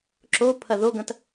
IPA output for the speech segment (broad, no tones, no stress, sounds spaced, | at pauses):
ǁ o pʰ ɐ ð o ɡ ɐ̃ t